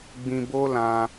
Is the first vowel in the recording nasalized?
yes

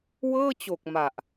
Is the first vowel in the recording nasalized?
no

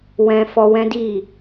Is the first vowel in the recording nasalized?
yes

